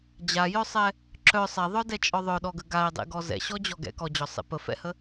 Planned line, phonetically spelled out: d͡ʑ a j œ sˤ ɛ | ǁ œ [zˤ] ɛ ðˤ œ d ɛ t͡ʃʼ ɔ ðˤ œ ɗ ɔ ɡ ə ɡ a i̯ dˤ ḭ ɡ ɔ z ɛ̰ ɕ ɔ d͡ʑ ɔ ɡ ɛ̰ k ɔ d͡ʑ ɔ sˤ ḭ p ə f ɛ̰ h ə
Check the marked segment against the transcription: incorrect: sˤ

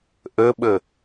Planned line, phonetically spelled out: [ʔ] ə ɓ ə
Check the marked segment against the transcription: correct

